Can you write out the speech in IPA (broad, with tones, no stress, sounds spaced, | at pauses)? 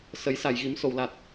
s ə˨˩˦ j s a˨˩˨ j ɣ i˨˩˦ m s o˨˩˨ w l a˨˩ t̚